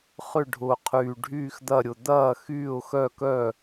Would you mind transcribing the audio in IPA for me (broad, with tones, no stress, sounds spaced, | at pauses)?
χ ʏ˥˩ ɖʱ ʊː˨˩ qʰ yː˨˩ ɖʱ yː˥˩ x d̪ ɐ˥˩ ɾʲ ʊ˨˩ d̪ ɐː˥˩ x yː˥˩ ʊ̯ x œ˥˩ k œ˥˩